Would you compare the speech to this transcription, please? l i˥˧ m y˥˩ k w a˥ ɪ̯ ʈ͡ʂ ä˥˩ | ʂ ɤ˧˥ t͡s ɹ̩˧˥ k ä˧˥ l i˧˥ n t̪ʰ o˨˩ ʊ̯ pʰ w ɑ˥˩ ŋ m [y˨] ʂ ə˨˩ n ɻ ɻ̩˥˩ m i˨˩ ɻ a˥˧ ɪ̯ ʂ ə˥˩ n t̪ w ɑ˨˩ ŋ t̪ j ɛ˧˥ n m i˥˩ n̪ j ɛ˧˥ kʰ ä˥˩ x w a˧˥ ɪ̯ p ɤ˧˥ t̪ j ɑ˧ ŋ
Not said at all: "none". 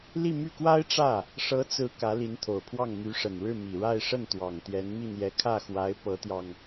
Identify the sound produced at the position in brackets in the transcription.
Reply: y˧˥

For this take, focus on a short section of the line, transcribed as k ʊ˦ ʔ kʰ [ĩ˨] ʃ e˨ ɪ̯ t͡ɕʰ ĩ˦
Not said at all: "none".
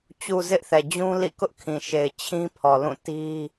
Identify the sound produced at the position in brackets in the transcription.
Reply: ĩ˨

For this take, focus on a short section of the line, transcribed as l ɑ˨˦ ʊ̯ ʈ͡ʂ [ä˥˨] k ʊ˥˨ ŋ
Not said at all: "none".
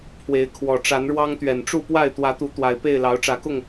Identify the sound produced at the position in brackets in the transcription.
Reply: ä˨˦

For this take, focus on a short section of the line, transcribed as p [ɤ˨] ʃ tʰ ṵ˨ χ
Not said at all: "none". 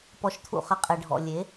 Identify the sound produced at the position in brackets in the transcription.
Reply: ɔ˨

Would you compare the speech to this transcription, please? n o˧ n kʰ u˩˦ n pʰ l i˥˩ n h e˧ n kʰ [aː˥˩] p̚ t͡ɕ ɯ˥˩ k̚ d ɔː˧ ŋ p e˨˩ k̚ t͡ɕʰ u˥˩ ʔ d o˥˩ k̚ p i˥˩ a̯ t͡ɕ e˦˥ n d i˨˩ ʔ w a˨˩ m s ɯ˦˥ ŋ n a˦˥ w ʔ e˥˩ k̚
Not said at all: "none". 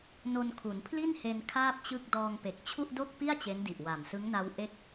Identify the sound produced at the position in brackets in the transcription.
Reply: aː˥˩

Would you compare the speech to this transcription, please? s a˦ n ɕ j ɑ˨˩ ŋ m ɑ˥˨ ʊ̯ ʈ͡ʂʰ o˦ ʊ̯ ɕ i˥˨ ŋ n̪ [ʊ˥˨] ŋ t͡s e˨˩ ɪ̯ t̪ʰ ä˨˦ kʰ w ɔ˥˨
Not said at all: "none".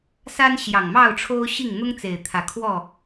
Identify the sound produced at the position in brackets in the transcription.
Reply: ʊ˦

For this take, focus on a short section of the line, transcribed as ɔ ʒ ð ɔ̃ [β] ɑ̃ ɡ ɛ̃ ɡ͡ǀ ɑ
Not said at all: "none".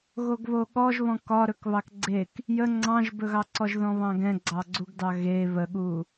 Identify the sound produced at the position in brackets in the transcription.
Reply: β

